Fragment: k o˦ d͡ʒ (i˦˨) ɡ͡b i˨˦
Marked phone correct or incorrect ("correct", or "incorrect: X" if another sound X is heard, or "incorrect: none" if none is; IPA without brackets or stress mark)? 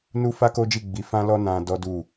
correct